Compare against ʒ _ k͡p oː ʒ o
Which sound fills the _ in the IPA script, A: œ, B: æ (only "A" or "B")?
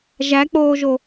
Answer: B